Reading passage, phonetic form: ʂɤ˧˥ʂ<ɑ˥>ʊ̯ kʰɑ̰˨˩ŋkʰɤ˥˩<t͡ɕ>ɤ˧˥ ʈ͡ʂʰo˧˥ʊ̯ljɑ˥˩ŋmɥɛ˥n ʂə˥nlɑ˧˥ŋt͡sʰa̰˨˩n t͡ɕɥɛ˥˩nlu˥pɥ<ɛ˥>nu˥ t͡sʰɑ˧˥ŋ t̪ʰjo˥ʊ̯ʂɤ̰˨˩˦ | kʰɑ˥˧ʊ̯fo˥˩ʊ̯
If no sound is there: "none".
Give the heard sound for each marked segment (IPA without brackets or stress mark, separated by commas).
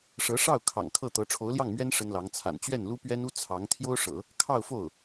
ɑ˥˩, t̪, ɛ˥